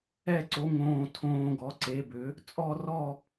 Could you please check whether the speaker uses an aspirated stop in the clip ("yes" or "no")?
yes